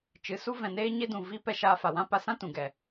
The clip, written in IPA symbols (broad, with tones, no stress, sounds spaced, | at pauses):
t͡ʃ ɨ˨˦ s u˦ v ɛ̃˨ n eː˧ ɲ e˧ d ũ˨ v i˦ p ɛ˧ ʃ aː˧ f a˨ w ã˦ p a˧ s ã˦ t ũ˨ ɡ ɛ˨